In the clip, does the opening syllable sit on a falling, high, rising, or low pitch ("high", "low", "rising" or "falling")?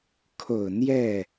low